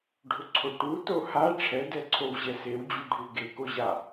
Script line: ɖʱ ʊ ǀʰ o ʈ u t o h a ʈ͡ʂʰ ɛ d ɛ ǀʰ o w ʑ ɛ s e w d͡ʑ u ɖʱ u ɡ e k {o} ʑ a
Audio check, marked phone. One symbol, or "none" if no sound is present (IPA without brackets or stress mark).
o